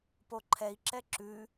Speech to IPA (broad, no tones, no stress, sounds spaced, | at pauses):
p o ǃʰ ɛ i̯ ǁ ɛ ǁ ʉ